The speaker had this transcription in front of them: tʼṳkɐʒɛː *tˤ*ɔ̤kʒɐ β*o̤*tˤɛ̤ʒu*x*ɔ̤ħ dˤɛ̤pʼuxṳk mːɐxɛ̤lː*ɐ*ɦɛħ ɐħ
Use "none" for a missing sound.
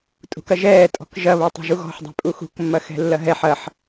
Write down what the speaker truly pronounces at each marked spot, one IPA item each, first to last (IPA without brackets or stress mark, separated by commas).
tʼ, o, ɣ, ɐ